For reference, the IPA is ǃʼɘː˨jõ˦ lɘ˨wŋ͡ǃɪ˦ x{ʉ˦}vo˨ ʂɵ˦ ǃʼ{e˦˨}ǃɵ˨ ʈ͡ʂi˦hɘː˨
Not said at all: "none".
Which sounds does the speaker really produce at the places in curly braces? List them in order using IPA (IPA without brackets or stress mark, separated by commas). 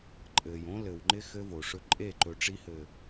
ɘ˦, e˦˨